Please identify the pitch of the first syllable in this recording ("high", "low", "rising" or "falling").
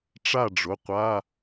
falling